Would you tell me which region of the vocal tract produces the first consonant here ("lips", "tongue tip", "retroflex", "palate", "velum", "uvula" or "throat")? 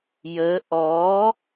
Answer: palate